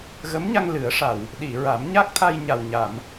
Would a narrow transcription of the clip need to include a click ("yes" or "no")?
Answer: no